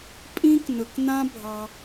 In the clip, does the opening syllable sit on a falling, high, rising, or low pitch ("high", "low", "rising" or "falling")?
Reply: high